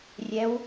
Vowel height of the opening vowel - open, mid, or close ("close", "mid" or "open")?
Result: mid